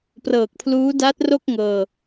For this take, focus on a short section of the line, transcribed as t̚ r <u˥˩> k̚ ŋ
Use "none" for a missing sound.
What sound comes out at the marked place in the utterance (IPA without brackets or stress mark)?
o˥˩